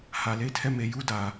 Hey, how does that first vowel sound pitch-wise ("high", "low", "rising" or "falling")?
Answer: low